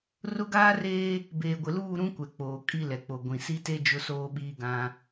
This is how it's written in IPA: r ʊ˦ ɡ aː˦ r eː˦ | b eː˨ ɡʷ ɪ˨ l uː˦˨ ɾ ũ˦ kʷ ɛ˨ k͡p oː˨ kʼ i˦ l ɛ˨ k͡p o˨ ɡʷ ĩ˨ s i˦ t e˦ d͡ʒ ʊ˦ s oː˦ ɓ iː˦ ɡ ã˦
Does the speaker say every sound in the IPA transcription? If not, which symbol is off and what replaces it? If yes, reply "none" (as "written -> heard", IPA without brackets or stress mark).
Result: none